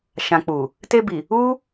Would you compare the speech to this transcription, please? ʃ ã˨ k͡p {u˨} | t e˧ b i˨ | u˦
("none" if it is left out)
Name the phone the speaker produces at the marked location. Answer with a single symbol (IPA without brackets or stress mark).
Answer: u˨